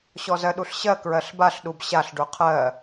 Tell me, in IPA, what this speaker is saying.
ɕɔzɜɗuɬɕɜ kɹɜɬbaɬɗub ɕaɬ ɖuqʰɜ

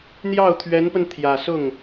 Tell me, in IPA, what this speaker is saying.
n̪jɑ˥˩ʊ̯t̪ʰɥɛ˧˥npə˧n t̪ʰjä˨˩sʊ˥˩ŋ

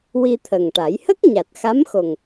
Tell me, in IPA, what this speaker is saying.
wi˧t̪ʰə˨˩ŋʈa˨˩˦j hə˦˥k̚ ɲa˨˩t̚xa˧˥mxo˨˩ŋ

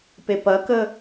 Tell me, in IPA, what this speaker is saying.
pepɐkə

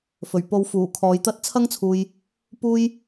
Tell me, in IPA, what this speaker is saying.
fɵ˨˩ɥpo˧wfuː˨˩ kʰɔː˨˧jt̪ɐ˥t̚ t͡sʰɐ˥ŋt͡sʰuː˨j | puː˥j

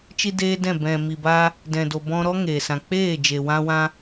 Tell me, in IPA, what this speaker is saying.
t͡ʃi˧ deː˦dɛ̃˦˨ bɛ̃˨mi˨baː˧ | dɛ̃˨do˨ bɔ̃˧ɾɔ˦ ŋeː˨ sã˨k͡peː˦˨d͡ʒe˨ wã˧wã˧

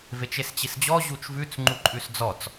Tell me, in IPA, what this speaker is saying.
vet͡ʃest͡ɕisd͡ʑɔ ʑut͡ʃvʉt͡s ŋ͡ǃuǃʼʉsd͡zɔt͡s

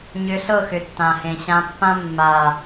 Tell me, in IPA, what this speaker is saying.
ɲʏ˧ɬɤ˦˨xʏ˨ tːã˨hẽ˨ɕã˧pːã˦ mːa˨

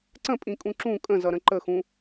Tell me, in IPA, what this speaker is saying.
ǀə̃pʼĩkʼũ ǁũ kʼə̃zʌɾə̃ ǃəxũ

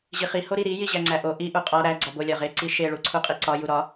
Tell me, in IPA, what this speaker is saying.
ʑiχi hoɾiɾi jiʑæŋ͡ǀæʔo ʔi ʔuqʼɒ ɾæ ɡ͡ǀɒbo lʲɒʁe ǀiʃe ɭuǀʰuqʼiǀɒ juɾɒ

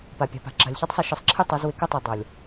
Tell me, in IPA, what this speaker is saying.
pa˨pʲa̤˨pa̤˨ ǁa̤˨lʲçɛ˦tˤsˤʌ˧ ʃɪ˧sˤ ǁʰɪ˦tˤʌ˨˦z wɪ˧kə˦tˤe˨ dˤɤ˨lʲ

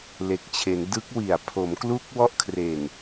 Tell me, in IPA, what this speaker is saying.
le˨˩k̚t͡ɕʰe˩˦n dɯ˦˥k̚wi˨˩a̯ pʰo˩˦mklu˦˥k̚ wɔ˥˩ʔkʰre˨˩n

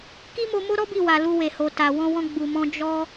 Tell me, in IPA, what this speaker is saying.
ki˦mo˧mo˦ɾɔ˦ bi˦˨wa˨ lu˧we˨ho˨ ta˨wɔ̃˧wɔ̃˧ ɡ͡bu˨mɔ̃˧ d͡ʒɔ˦

